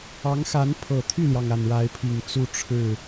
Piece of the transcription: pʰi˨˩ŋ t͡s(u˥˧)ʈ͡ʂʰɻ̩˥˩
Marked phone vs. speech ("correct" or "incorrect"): correct